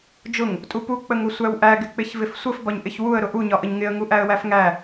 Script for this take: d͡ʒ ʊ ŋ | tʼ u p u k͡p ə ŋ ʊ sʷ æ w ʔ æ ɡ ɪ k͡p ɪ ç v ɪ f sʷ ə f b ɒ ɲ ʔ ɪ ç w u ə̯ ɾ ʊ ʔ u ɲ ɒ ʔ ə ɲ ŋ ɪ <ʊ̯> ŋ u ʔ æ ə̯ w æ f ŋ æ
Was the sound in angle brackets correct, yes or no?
no